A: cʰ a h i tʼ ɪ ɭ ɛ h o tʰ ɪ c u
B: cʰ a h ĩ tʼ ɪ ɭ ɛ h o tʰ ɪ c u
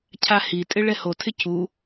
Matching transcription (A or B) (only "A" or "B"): A